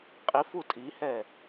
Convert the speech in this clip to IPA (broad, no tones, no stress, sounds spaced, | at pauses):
qʼ i f u tʼ i h ɛ